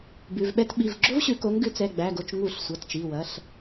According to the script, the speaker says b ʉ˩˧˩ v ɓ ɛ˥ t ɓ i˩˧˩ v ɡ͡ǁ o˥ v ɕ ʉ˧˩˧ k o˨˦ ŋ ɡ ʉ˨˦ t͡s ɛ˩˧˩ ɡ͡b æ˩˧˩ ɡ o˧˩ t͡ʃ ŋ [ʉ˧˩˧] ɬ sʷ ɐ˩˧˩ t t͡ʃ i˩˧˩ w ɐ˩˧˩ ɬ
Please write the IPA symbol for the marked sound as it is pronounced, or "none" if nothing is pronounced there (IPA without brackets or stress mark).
u˧˩˧